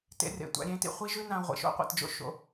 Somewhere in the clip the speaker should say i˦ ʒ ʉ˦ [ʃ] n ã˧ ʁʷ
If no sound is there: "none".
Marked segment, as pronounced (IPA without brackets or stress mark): none